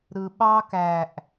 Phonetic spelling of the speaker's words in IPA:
ɾ ɯ ɓ ɑ k æ ʔ

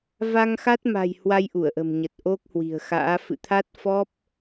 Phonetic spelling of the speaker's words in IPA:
v a˧ ŋ x a˦˥ t̚ m a̤˨˩ j h w a˧ j ʔ u˧˩ ə̯ ʔ ə̤˨˩ m ɲ ə˨˩ t̚ ʔ o˦˥ k̚ h w i̤˨˩ ə̯ x a̰ː˧˥ f ɨ̰˧˨ t̪ʰ a˦˥ t̚ f ɔ˦˥ p̚

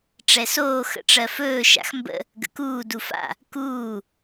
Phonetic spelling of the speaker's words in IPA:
ʈ͡ʂ ɛ s oː x ə̰ ʈ͡ʂ ɜ f ɵː ʃ a̰ x m b ə̰ | ɡ ə̰ k uː d u f a̰ | k uː

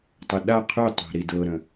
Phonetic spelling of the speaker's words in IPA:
tˤ ə ɗ a qʰ y tˤ æ̤ ɾ i d ɤ ɾ ə̃

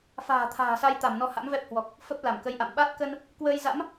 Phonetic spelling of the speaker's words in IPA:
f a̤ː˨˩ t̪ʰ a̤ː˨˩ s a˧ j t̪ a˧˩ m n ɔ˨˦ h a̰˧˥ m v ɛ˦˥ p̚ h w ɔ˨˩ k̚ | f ə˦˥ p̚ l a˧˩ m k ə˨˦ j ʔ a̰˧˨ m ɓ a˦˥ t̚ k ə˧ n | k w əː˧ j z a̰˧˥ m

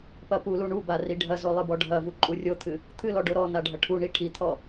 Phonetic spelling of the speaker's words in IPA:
p ɐ p u l u ɳ u b a r i ɖʱ ɐ z o lˠ ɨ b ɔ ɖʱ ɐ v u ǃʼ u rʲ o t̪ʰ ɨ | t̪ʰ ɨ l ɔ ɖ o ɾ ɔ n a ɖʱ ɐ ʈʰ u ɳ i ʈʰ i t̪ʰ ɔ

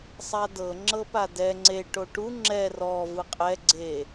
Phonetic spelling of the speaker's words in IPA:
sˤ a d ɤ ŋ͡ǁ ɤ p a d ɛ ŋ͡ǀ e ʈ o ʈ u ŋ͡ǁ ɛ r ɔ v ɯ qʼ ɛ ɡ͡ǀ e

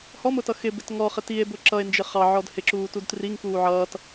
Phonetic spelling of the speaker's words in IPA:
h ɔ m ʊ t ʌ x ɪ b ɪ t ŋ ɔ χ ɪ t i e̯ b ʊ ǁ ʌ e̯ n d͡ʒ ɪ χ ɑ ʕ ɔ d h ɪ ǁ uː t u d t r i ŋ k uː ʕ ʌː t

